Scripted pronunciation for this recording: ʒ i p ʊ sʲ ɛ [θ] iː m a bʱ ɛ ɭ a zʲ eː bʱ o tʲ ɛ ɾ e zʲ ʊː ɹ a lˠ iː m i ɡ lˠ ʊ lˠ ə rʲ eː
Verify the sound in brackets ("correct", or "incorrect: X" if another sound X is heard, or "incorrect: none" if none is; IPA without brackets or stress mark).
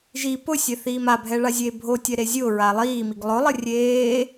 correct